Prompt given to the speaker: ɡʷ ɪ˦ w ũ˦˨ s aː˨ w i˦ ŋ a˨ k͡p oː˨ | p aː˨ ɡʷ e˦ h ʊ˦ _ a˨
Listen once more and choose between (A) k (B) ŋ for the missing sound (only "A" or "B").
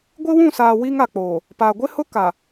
A